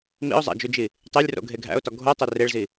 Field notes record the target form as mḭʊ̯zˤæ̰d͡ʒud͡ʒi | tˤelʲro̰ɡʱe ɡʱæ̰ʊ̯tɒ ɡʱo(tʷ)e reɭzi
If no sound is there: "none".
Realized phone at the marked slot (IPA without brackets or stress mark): tˤ